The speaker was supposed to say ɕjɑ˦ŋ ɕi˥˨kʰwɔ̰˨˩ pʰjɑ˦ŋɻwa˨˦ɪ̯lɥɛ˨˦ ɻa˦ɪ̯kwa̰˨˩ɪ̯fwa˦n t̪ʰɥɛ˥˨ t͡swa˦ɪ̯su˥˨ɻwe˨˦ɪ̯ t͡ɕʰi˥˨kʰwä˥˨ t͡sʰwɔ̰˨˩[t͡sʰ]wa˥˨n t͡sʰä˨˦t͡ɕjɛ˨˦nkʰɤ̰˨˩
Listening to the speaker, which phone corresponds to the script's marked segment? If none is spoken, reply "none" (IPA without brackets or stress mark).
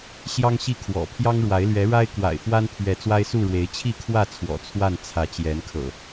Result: t͡sʰ